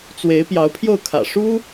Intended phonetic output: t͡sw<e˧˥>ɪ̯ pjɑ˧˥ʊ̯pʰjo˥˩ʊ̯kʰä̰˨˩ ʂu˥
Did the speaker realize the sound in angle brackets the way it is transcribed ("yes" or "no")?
yes